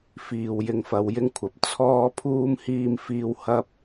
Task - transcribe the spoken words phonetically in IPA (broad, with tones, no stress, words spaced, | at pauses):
fiː˨wjɪ˧ŋfɐ˨˧wjɪ˥ŋ kʷʰɐ˨p̚ t͡sʰɔː˥pʰuː˥m hiː˧mfiː˧w hɐ˥p̚